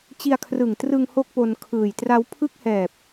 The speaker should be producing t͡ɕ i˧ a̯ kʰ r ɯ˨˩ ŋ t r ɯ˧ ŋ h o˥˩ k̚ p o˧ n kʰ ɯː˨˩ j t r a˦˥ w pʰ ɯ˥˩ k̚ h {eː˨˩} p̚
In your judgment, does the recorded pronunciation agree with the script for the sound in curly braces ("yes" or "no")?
no